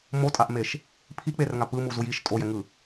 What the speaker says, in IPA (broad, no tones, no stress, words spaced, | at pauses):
motʼaʔmeʃ | pʰik͡perŋa pɯmuzuj iʃ tʼojɛŋɯ